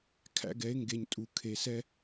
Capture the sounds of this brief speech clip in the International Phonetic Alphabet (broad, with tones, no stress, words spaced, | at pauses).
kʰæ̰˧ɡɛ˩˧e̯ŋɡe˩ɲ tʼu˩ kʰe˩sɛ˧